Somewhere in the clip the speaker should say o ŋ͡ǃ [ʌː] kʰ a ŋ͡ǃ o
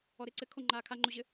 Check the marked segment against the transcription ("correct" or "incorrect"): incorrect